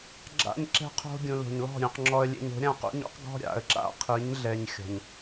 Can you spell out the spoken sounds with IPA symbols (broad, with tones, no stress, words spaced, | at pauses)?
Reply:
ɡ͡ǁa̰˧ɲǁɛ̤˧qʰo̤˧ ɡʲũ˨lo̤˨ɲlɔ̤˦˨ ɾʲũ˨qŋ͡ǁɔ˧ə̯lʲḛ˧ɲ o̤˨˦ɾʲã˦˨qṵ˦ɲ ṵ˦q ɡɔ̤˦ɾʲa̰˨ə̯ǁa̰˦qʰi˨˦ɲ ɮɛ˧ɲxʲɔ̤˨ɲ